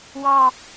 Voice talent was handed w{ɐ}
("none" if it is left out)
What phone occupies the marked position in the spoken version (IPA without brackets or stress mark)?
ɑ